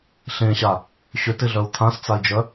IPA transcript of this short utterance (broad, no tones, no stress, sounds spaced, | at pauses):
ɬ ẽ ɕ a | ɕ ʏ t ɪ ɮ œ u̯ t̪ʰ ã s t͡s a i̯ d͡ʒ œ